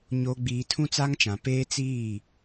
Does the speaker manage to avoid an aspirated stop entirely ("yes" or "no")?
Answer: no